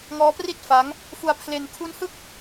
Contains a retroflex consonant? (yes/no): no